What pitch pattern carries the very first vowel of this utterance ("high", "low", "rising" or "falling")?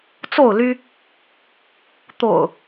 falling